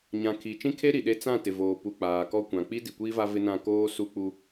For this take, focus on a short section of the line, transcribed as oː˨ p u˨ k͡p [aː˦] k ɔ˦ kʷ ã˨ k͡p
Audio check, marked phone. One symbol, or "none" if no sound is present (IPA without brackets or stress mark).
aː˨